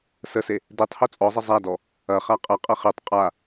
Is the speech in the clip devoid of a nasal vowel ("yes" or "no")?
yes